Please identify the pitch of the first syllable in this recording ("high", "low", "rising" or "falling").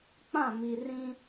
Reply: falling